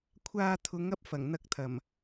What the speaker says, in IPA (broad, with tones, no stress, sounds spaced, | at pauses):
kʷʰ aː˧ t̪ʰ ʊ˨˧ ŋ ɐ˥ p̚ f ɐ˨˩ ŋ n̪ ɐ˧ k̚ t̪ʰ ɐ˨˩ m